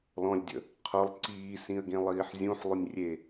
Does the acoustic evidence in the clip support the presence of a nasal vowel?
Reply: yes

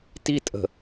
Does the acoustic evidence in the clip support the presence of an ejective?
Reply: yes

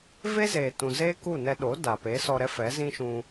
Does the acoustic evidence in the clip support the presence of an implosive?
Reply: yes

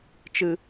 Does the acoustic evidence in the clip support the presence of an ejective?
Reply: no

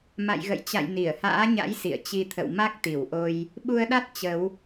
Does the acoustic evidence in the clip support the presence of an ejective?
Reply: no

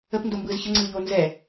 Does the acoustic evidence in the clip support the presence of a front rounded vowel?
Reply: no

